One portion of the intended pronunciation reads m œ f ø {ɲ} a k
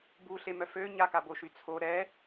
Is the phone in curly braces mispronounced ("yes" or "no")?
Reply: no